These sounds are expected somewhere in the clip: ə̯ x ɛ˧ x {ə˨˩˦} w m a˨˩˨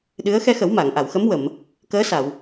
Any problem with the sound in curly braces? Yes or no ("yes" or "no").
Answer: no